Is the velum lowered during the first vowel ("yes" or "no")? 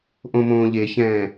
yes